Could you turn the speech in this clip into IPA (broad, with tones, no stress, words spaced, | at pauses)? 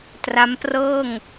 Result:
tra˦˥mprɤː˥˩ŋ